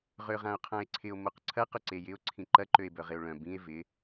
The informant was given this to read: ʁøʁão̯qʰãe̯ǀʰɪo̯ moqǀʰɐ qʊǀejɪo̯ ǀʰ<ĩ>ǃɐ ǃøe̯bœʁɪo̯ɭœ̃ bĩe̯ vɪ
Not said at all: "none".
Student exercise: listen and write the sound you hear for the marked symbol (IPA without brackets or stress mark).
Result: ĩ